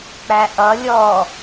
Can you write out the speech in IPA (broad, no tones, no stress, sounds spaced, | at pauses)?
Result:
k͡p æ ʔ ʌ lʲ ɔ